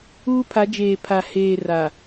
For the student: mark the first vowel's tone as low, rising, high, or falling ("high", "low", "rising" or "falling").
high